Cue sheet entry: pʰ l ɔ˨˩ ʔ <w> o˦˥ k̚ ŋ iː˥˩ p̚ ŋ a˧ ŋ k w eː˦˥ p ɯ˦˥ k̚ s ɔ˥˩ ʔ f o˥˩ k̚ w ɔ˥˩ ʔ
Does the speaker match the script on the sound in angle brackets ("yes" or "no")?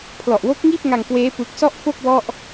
yes